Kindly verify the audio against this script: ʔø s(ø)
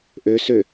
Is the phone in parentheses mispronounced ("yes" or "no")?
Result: no